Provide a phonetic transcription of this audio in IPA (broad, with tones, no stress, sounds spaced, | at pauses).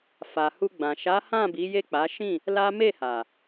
f a˨ h u˧ ɡ͡b ã˨ ʃ a˨˦ h ã˦˨ b i˨˦ j e˦˨ k͡p a˨˦ ʃ ĩ˦˨ | l a˦ m e˦˨ h a˨